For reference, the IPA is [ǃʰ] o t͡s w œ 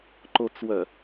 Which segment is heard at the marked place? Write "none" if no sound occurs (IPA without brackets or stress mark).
ǃ